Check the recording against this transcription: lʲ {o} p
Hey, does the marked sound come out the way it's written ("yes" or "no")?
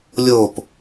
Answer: yes